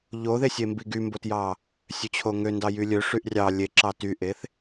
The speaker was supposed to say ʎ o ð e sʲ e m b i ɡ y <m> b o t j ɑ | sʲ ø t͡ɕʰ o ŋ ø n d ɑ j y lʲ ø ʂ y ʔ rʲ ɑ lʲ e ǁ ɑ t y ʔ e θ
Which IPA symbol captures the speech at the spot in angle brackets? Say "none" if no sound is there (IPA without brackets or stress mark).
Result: m